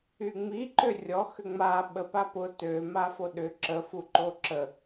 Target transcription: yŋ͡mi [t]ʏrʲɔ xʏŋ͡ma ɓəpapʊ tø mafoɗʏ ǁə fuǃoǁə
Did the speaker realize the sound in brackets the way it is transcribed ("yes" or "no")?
no